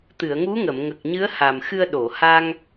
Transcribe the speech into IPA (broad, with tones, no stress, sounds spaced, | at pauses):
t̪ ɨ˨˩˨ ə̯ ŋ u˧˥ ŋ ə˨˩˨ m ŋ ə˨˩ k̚ ɲ ɨ˧˥ ə̯ h a˨˩ m x ɨ˧ ə̯ ɗ o˨˩˨ h a˧ ŋ